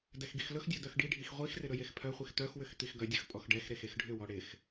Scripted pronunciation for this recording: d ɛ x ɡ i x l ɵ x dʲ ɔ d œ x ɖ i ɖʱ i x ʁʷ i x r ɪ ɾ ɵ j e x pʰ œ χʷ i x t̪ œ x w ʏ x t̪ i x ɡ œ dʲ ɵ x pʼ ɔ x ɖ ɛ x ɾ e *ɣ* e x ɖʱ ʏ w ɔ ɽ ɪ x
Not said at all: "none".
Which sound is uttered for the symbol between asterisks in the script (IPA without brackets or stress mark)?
x